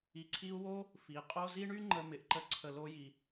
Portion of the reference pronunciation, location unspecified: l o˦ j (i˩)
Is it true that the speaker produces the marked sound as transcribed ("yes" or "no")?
yes